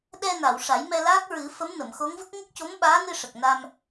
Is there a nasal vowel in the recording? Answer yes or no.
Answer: no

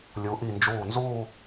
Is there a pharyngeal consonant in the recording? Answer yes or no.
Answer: no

